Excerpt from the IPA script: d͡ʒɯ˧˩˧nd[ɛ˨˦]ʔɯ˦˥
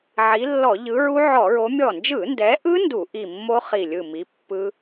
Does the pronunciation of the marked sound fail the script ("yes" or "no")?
no